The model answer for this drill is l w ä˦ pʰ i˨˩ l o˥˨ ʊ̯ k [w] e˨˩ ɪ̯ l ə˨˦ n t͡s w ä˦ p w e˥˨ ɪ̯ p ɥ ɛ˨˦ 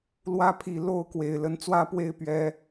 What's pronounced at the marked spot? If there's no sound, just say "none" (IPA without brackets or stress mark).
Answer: w